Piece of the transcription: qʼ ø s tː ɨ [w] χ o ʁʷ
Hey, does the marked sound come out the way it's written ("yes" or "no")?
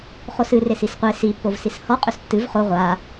no